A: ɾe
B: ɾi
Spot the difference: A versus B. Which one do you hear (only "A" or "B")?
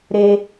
A